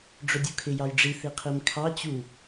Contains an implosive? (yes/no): no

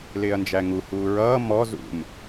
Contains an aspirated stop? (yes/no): no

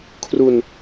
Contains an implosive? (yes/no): no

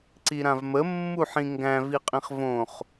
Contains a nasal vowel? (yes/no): yes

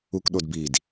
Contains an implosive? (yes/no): yes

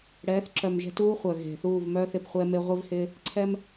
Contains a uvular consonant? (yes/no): yes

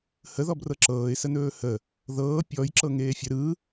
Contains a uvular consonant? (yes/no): no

